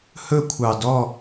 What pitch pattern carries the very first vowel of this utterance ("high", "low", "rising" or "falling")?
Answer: falling